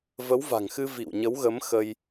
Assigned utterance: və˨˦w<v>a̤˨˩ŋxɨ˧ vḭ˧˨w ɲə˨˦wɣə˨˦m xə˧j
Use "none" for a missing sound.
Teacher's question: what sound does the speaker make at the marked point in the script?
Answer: v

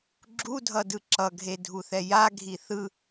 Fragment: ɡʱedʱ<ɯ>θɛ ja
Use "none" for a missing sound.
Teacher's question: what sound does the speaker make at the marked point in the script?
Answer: u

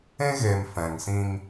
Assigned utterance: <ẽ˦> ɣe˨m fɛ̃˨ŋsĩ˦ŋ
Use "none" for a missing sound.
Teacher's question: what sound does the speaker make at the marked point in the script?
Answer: ẽ˦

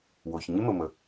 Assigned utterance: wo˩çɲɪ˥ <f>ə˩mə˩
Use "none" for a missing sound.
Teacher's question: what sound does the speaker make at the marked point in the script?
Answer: m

